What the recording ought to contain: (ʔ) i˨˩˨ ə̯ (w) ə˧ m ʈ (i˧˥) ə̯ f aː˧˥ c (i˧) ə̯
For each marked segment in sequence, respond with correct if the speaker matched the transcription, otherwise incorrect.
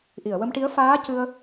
correct, correct, correct, incorrect: ɨ˧

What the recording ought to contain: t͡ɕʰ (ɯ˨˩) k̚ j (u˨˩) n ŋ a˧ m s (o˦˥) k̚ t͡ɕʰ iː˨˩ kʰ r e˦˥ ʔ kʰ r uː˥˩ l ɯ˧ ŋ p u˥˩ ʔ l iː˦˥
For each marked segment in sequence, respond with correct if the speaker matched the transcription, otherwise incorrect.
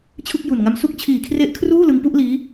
incorrect: ɯ˥˩, correct, incorrect: u˦˥

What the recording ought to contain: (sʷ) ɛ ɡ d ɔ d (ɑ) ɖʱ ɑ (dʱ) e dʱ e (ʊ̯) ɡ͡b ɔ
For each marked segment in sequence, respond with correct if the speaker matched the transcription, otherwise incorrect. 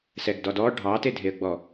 incorrect: s, incorrect: ɔ, incorrect: t, incorrect: ə̯

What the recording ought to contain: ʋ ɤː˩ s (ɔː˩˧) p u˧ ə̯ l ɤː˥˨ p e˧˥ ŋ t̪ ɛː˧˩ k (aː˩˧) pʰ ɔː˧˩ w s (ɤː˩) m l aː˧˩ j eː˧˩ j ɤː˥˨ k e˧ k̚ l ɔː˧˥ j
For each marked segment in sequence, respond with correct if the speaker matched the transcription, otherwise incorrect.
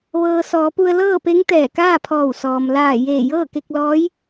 correct, incorrect: aː˥˨, incorrect: ɔː˩

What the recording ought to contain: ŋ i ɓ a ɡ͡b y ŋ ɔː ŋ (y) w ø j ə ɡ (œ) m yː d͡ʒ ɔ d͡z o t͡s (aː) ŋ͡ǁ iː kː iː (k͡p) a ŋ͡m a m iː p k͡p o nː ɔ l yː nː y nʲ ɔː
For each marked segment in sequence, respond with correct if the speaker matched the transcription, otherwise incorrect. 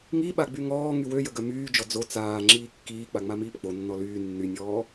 correct, correct, correct, correct

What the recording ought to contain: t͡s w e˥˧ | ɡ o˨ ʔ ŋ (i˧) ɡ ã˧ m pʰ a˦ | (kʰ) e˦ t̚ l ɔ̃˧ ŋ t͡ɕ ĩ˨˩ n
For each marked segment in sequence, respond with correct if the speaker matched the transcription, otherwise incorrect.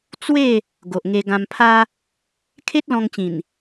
incorrect: e˧, correct

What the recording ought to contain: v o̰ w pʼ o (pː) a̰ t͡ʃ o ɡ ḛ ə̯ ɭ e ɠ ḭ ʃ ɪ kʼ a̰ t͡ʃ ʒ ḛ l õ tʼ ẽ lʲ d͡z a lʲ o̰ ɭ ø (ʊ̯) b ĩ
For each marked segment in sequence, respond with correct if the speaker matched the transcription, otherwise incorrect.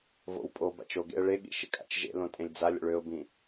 incorrect: b, correct

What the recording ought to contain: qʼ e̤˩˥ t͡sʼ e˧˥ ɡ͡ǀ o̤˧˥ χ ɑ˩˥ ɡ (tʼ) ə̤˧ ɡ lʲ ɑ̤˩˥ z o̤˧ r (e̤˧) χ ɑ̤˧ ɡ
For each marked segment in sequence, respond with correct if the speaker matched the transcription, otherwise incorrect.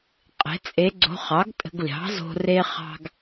correct, incorrect: e˧

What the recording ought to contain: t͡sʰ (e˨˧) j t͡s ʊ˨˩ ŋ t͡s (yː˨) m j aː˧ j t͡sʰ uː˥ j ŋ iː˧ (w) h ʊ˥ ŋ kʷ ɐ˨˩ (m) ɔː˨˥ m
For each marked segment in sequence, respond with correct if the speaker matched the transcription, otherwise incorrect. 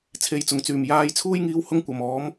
incorrect: e˨, incorrect: yː˨˩, correct, correct

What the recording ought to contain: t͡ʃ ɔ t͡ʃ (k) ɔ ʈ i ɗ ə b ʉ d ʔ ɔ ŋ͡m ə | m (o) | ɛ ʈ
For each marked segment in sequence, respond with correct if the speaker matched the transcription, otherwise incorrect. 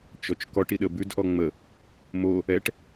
correct, correct

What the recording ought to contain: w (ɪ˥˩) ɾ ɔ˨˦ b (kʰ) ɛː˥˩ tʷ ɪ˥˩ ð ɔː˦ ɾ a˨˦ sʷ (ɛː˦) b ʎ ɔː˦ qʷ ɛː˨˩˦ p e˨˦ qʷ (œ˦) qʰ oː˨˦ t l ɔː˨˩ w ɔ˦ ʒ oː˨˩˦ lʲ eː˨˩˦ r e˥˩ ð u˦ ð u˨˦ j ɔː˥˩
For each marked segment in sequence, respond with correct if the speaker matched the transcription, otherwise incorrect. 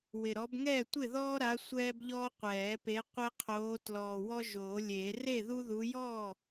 incorrect: ɪ˨˩, incorrect: ŋ, correct, incorrect: ɛ˦

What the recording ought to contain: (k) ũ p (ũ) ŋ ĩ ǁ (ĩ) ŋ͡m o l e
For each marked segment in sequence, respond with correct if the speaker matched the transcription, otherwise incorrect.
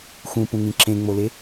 incorrect: x, correct, incorrect: ẽ

